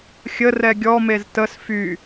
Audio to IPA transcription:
xʲərɛ ɡʲɔmez təs fy

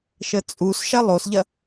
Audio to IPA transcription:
ʃət͡sʼusʃɐ lˠosʎɐ

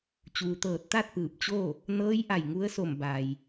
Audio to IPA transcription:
t͡ɕuː˩t̪ɤː˧˩t̚t̪a˥˨t̚ pɯː˧˩p̚t͡ɕo˥˨ | nɤː˧˥jʔa˧˩j ŋu˧˥ə̯so˧˩m ba˩j

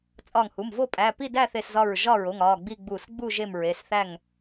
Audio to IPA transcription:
t͡sʼɒ˧˩ŋhu˩˧˩mvo˥˨ pʼæ˩˧˩ pi˥˨dæ˥˨θe˧˩szɒ˧˩ɹ ʒɒ˥˨ɹo˩˧˩ŋ ɒ˩˧˩ɡ͡bi˥˨ ɡ͡bu˧˩s ɡ͡bu˥˨ ʒe˥˨mɹe˩˧˩sθæ˥˨ŋ

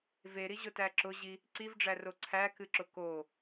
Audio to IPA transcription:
veɾiʑʊtæ ǁʊʑi | ǀivɖ͡ʐæro ǀʰækɨǁʊ ko

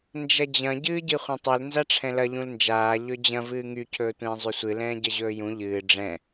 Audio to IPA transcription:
nd͡ʒɐd͡ʑɐ̃ ɟɨːɟɨχʷɐ̃tˤɵl nzaʈ͡ʂʰɛ̃lɐ ʎũlnd͡ʒaː ʎɵd͡ʑɐ̃ vɨːŋy cʰɵːtʷɛ̃ːzˤysʷɨ lɛ̃ːɟɐʑɵːjũ ʎɨː ɖ͡ʐɛ̃

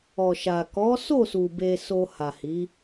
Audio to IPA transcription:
ɔ˨ʃa˨ kɔ˨˦so˦˨su˨ be˧so˧ ha˨hi˨˦

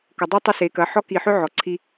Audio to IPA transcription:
kʊ˨dˤy˦tˤʊ˦ se˨˦kɐ˨˦ ħɔ˦ ki˨ħʏ˦ ʕɔ˨ǀʰi˦

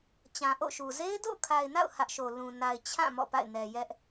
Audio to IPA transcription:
t͡ɕã˨ʔo̰˦˨ʃu˨ ze˦ɪ̯do̰˦˨ʊ̯kʰa˨ɪ̯na̰˦˨ʊ̯ hä˦ʔʃo˨ lũ˨ na˨ɪ̯t͡ɕʰã˦˨ mɔ̰˦˨pa̰˦˨ɪ̯nɛ˨jɛ˦ʔ

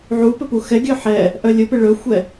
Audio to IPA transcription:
ʕupɵ puxɛɡʲœ ħɛ | ʔœlʲɵpɪ ɭɵxʷɛ

